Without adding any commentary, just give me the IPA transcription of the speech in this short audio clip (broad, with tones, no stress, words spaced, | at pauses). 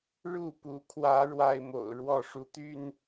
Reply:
ɻu˥˨pu˨˦kʰwä˨˦ ɻwa˦ɪ̯mo̰˨˩ʊ̯ ɻwɔ˥˨ʂu˨˦t̪y˥˨n